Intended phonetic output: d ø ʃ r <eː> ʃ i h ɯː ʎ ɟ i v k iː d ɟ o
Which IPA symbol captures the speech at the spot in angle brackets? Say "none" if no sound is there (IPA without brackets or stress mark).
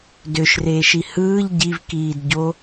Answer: eː